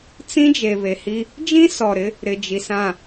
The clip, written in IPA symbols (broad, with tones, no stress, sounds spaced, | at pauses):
t͡s ĩ˦ d͡ʒ e˨ β e˨ h i˦ | d͡ʒ ĩ˦ s ɔ˨ ɾ ɪ˦ | ɾ ɪ˨ d͡ʒ i˨ s ã˦˨